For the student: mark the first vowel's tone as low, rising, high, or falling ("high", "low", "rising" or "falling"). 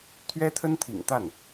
high